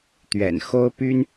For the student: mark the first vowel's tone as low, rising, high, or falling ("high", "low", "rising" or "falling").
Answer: low